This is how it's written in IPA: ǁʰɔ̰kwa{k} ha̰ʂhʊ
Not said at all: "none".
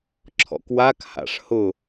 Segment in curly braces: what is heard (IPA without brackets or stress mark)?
k